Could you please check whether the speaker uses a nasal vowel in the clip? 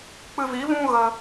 yes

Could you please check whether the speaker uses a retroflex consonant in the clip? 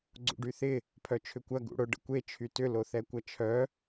yes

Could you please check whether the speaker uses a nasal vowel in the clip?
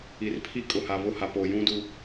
yes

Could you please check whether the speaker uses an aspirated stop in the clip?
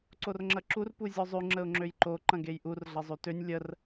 no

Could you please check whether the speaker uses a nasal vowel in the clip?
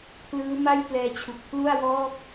no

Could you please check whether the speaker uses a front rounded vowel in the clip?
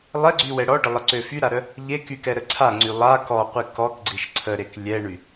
yes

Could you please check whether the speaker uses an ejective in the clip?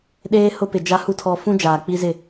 no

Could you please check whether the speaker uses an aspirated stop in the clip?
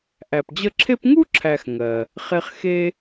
yes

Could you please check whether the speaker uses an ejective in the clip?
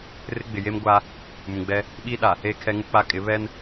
yes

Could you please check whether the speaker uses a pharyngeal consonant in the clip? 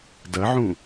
yes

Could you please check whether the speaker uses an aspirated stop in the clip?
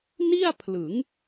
yes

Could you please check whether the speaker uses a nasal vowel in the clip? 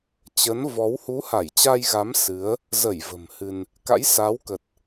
no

